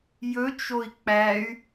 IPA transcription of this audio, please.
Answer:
j ɵ t͡ʃ o i̯ k͡p æ y̯

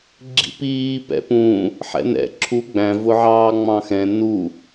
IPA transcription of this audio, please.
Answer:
ɡ͡ǁ ḭ p iː p ɛ̰ p ũ | ħ ɛ̰ n ɛ̰ ǁʰ u ɡ͡b æ̃ v ʊ ʕ ɑː ŋ͡m ɑ̃ x ɛ̃ n u

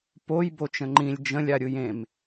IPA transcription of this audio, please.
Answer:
p o j b o t͡ʃ ə̃ ŋ͡ǃ ĩ lʲ d͡ʒ ə̃ lʲ a ɾʲ ɯ j ẽ m

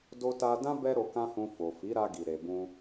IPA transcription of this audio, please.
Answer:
d o˧ t a˧ d ã˦ b ɛ˦ ɾ o˧ k ã˦ h ũ˧ f o˨ f i˨˦ ɾ a˧ ɡ i˨ ɾ e˨ b ũ˧

